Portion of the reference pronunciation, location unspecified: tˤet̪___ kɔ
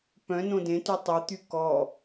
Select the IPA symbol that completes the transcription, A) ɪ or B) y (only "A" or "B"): B